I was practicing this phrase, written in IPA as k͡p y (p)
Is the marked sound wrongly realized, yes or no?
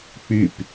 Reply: no